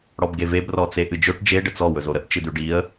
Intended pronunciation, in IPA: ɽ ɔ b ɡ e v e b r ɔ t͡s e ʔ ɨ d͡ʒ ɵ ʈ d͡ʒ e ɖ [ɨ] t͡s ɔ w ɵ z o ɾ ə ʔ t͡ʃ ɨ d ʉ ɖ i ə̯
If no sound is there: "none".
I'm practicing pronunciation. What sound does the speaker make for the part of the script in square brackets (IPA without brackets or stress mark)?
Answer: ə